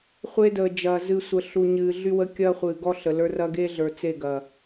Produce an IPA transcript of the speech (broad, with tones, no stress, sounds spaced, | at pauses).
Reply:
χʷ e˦ d əː˨ d͡ʒ ɐː˨ z ɨ˨ sʷ ə˨ ɬ u˨ ɲ ɨː˨ ɮ y˦ w ə˦ kʲ ɐː˦ χʷ ɨː˨ ɡ ɔ˦ ɬ ə˨ l ə˞˦ r ɐ˦ ɡ e˦ ɮ ə˞˨ t͡s e˦˨ ɡ ɐ˨